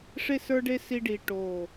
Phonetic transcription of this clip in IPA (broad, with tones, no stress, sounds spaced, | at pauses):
ʂ e˥˧ s ə˞˥ ɖ e˥ s i˥ ɖ i˧ ʈ o˧˩